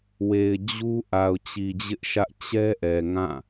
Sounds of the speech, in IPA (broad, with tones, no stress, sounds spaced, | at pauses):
w e˨ ɪ̯ d͡ʑ u˦ ʔ a˨ ʊ̯ t͡ɕ i˨ d͡ʑ ɪ˦ ʔ ʃ ä˦ ʔ t͡ɕ ɛ˦ ʔ ɛ˨ ŋ ã˦˨